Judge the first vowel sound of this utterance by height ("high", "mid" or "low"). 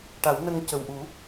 low